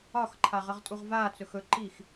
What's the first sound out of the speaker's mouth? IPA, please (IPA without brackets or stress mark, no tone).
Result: ɒ